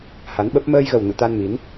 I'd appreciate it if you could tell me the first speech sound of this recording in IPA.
h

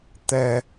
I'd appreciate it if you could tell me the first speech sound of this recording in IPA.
t̪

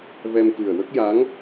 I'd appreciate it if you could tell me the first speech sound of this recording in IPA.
v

